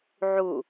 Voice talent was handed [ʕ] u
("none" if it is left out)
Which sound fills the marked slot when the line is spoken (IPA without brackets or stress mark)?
ʕ